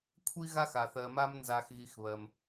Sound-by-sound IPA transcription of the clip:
kʷʰ i˥ ɣ a˥ x a˩ θ ɜ˨ m a˦ m n z a˨ x ɣ i˨ x β ɜ˩ m

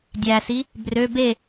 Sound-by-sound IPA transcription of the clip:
dʲ æ s i | b r ø b e

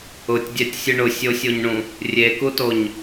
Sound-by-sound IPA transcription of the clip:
ʊ tʲ dʲ æ tʲ sʲ ɨ ɳ ʊ sʲ o sʲ o ɲ ɳ ũ | rʲ e k u t o ɲ

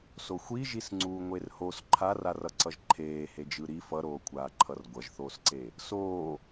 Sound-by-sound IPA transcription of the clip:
s o xʷ i ʒ i s ŋ͡ǀ uː ŋʷ e r h o s ǃʰ a r a r ʌ ǀ ʌ ʒ ǃʰ eː h e d͡ʒ ɯ ɾ i f ʌ ɾ oː kʷʰ aː ǃʰ ʌ r ɡʷ ʌ ʒ θ oː s ǀ e | s oː

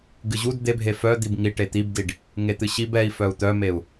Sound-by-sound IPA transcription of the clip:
ɡ ɨ ʑ u d d̪ e bʱ e f œ d̪ i b ŋ i ʈ e t̪ i b d i ɖ | ŋ e t̪ ɨ ɕ i b ɛ i̯ f œ u̯ t̪ œ m e u̯

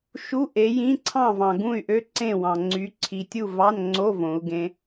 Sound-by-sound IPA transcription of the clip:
ʃ u˧˥˧ ʔ e˨˦ j ĩ˧˥˧ ǀʰ ɑ̃˥˨ v ɑ̃˨ ɡ ũ˥˨ y̯ ʔ ø˦˥ ǀ ẽ˥˨ w ɑ̃˨ ŋ͡ǀ y˨˦ ǀʰ i˨ tʲ u˥˨ v ɑ˧˥˧ n ŋ͡ǀ o˧˥˧ v õ˨˦ u̯ ɡ ẽ˦˥

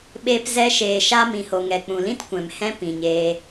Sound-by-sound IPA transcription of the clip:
ɓ eː˧ p z ɛ˧ ʃ eː˨ ʃ a˧ m ĩ˨ h o˨ ŋ ɛ˨ k͡p ũ˨ l ĩ˦ t kʷ ɛ̃˨ m h ɛ̃˦ p ĩ˨ ɲ eː˧

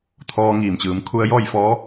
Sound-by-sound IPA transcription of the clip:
t̪ʰ ɔː˧ ŋ iː˧˩ m t͡ɕ ɯː˩ m kʰ u˧ ə̯ j ɔː˥˨ j f ɔː˧˥

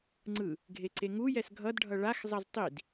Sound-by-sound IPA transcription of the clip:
ŋ͡ǀ ɯ | ɡʱ e ǀ e ŋ u j ɛ s ɡʱ ʌ d ɖʱ ʌ ɭ a x zˤ ʌ z tˤ i d

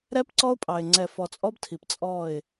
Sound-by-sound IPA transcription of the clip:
ɾ ɛ˦ p ǀ ɔ˦ ʊ̯ pʼ ɑ˨ ɪ̯ ŋ͡ǀ ɛ˨ f ɔ˨ t͡sʼ ɔ˦ b tʰ i˨ p t͡sʼ ɔ˦˨ ɪ̯

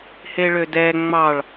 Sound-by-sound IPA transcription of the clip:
h e ɭ ø d ɛ ŋ͡m ɑ ɭ

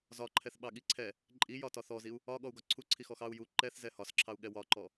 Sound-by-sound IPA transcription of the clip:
z ɒ ǃʰ ɛ θ ɓ ɑ ɠ i ǀʰ ɛ | ǃʼ i j ɒ t ɒ θ ɔ z i u̯ | ɒ ɠ ɔ u̯ ɡ ɒ ǀʰ u ǀʰ i x ɔ x ɑ u̯ j u ǃ ɛ θ z ɛ h ɒ s ǁʰ ɑ u̯ ɠ ɛ w ɒ ǃ ɔ

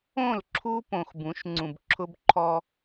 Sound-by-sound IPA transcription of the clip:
õ˦˨ l ǁʰ u˦ p õ˨ x b ũ˨˦ ʃ ŋ͡ǀ ũ˨ b ǁʰ ʊ˦ b ǃʰ ɔ˦

